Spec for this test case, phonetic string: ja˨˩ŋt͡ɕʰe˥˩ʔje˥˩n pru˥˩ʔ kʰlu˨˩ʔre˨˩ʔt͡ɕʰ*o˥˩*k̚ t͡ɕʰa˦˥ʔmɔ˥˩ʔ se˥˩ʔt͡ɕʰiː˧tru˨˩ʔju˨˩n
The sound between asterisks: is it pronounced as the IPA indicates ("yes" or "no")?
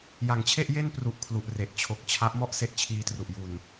no